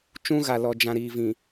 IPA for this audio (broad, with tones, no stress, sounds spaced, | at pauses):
t͡ʃ ũ˦ ɣ a˨ l ɔ˨ d͡ʒ ã˨ ɾ iː˨ v ĩ˨